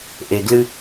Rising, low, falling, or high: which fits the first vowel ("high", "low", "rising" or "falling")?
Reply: low